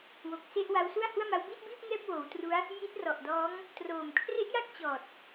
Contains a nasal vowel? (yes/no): no